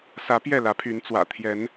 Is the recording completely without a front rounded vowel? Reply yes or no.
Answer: no